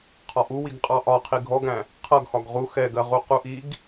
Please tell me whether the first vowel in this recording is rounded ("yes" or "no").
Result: yes